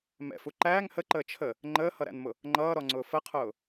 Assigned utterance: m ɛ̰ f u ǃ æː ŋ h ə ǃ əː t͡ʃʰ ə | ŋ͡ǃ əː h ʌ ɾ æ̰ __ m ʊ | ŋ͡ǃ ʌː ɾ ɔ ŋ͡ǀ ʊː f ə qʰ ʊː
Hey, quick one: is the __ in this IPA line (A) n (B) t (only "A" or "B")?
A